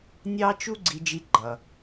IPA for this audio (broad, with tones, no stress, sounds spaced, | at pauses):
nʲ ɑ˥ t͡ʃ u˥ ɡ͡ǀ i˧ d͡ʒ i˧ ɡ͡ǃ ʌ˩